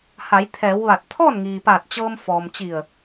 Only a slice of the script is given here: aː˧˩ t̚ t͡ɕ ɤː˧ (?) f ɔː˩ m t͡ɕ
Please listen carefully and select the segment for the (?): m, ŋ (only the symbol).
m